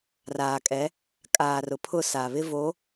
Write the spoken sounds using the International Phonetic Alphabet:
r aː˨ kʼ ɛ˨˦ | kʼ aː˨ r ʊ˨ pʰ ʊ˦˨ s a˨ β ɪ˦ v o˨˦

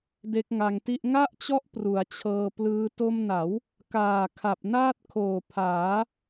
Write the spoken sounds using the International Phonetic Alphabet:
d e˦˥ k̚ ŋ a˧ ŋ t i˥˩ ʔ ŋ a˥˩ ʔ t͡ɕ ɔ˦˥ ʔ p r u˩˦ a̯ t͡ɕʰ ɤː˧ p l ɯː˦˥ t o˧ m n a˩˦ w | k aː˨˩ kʰ a˨˩ p̚ n aː˥˩ t̚ kʰ oː˨˩ pʰ aː˩˦

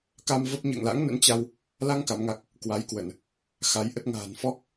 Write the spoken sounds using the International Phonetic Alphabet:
k a˧ m v ə˦˥ p̚ ɲ ə̰ː˧˨ ŋ l a̰˧˥ ŋ n ə̰˧˥ n t͡ɕ a˧ w | l a˧ ŋ k a˨˦ m ŋ a˦˥ k̚ | k w a˨˦ j k w ə˧˩˨ n | x a˨˦ j ʔ ə˦˥ t̚ ŋ a̤ː˨˩ n f ɔ˦˥ k̚

